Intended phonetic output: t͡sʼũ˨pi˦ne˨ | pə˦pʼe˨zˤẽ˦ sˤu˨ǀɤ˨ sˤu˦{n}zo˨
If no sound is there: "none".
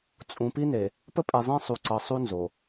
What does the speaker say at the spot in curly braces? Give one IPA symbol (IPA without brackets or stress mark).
n